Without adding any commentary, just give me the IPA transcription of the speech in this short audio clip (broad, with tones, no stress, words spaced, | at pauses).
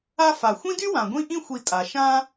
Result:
a˦fa˩ xʷĩ˥dy˥ wã˩ɡʷĩ˦ ʔĩ˦xʷi˨tʼa˩ ʃã˦